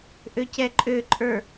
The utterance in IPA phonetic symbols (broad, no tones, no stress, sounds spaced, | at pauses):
ʔ ø c ɛ ǃʼ ø ǃʼ ə˞